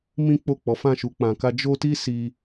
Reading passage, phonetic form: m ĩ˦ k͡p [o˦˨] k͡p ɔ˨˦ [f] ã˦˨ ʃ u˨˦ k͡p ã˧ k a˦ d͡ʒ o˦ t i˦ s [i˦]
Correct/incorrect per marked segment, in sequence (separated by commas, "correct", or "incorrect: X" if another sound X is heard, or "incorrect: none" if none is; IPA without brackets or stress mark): correct, correct, incorrect: i˧